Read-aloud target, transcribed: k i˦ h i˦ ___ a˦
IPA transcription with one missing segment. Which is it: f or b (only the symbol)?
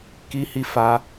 f